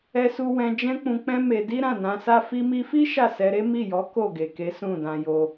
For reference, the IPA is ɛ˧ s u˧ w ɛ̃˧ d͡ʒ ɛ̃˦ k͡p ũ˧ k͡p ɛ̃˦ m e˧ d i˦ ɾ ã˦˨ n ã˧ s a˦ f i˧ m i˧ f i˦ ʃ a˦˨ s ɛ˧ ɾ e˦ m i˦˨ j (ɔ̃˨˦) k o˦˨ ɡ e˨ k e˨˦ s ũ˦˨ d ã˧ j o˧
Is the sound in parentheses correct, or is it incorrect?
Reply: incorrect